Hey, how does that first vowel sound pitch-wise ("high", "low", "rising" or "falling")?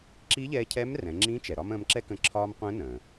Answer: rising